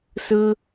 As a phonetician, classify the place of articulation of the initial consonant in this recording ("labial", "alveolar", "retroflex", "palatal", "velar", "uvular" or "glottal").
alveolar